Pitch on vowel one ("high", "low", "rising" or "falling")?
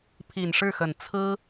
low